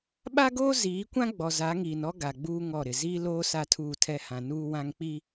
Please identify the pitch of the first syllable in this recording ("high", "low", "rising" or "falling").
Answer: high